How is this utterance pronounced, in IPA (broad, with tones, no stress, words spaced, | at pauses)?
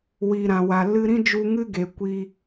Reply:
wiː˨ɾã˨wa˨ lɨ˧ɾĩ˦d͡ʒu˧ ŋɨ˦ɡe˨ kʷi˦